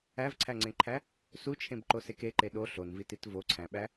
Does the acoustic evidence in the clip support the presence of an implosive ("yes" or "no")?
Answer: yes